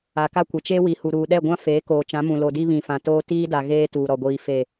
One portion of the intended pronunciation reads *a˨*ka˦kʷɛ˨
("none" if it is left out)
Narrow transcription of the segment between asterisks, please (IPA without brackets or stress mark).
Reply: a˨